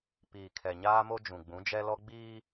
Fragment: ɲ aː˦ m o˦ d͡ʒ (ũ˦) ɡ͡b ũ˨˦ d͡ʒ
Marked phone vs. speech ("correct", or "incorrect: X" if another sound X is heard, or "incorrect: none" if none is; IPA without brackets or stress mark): incorrect: ũ˨